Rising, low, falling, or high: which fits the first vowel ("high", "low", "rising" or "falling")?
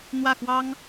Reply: falling